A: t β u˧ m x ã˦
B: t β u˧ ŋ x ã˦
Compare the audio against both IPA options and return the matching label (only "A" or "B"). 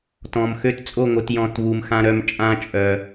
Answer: A